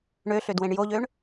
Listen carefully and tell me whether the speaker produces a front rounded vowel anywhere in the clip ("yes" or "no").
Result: yes